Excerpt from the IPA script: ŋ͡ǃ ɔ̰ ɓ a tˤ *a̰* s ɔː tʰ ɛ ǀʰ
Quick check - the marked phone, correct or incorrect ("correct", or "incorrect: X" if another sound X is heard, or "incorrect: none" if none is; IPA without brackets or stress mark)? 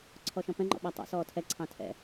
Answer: incorrect: ɑ̰